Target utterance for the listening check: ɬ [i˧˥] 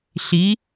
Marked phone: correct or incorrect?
correct